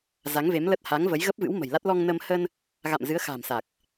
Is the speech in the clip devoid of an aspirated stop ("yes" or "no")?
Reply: yes